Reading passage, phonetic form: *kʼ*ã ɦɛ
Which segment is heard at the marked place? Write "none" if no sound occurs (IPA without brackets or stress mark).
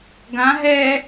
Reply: ɡ